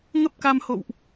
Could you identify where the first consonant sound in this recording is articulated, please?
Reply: velar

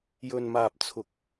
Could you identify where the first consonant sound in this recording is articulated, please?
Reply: palatal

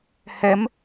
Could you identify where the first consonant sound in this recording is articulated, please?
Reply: glottal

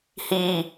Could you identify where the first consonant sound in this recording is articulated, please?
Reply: glottal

